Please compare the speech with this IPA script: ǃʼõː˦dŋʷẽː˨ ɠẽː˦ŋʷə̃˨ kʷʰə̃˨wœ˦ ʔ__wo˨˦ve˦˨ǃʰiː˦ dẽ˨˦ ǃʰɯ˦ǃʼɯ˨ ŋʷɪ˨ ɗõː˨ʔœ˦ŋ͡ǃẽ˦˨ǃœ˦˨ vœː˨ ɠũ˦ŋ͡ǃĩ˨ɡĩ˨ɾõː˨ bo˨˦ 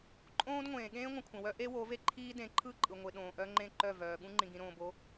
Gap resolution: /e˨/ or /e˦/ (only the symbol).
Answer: e˦